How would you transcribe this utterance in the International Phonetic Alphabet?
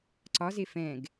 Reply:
ǀ ɒ z e f ɛ̃ ɡ

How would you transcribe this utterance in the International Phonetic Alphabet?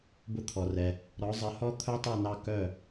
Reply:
b ʊ˧ t̪ʰ ɔ˩ r ɛ˩ | ɾ ɔ˩˥ zˤ ə˩˥ h ɔ˥ t̪ʰ œ˥ tˤ ɛ˥˩ n ɑ˥˩ k œ˥˩

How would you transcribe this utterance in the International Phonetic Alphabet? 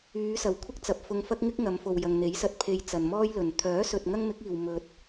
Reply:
yː˨˧ s ɐ˨˩ w kʷʰ ɪ˥ k̚ t͡s ɐ˨ p̚ f ʊ˧ ŋ f ɐ˥ k̚ ŋ ɪ˥ k̚ ŋ ɐ˨˧ m f o˨ w j ɐ˨ ŋ n̪ e˨˥ j s ɐ˨ t̚ pʰ e˧ j t͡s ɐ˨ n m ɔː˥ j l ɵ˨ n t̪ʰ œː˨˥ s ɵ˨ t̚ ŋ ɐ˥ ŋ m ɪ˨˥ k̚ iː˨ w m ɵ˨ t̚

